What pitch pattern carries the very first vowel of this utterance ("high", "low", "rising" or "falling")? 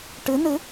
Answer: rising